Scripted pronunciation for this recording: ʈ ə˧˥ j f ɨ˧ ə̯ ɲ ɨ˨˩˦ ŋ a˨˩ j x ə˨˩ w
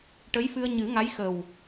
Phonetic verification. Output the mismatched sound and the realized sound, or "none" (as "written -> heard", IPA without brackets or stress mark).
a˨˩ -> a˧˥